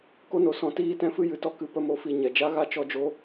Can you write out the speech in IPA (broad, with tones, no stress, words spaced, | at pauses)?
ko˧no˨sɔ̃˨ tiː˧tɛ̃˧fɨ˧ jɨ˨tɔ˧ kɨ˧ pə˦mo˧fi˧ ɲɛ˨d͡ʒa˦ɣa˦ t͡ʃɔ˦d͡ʒo˦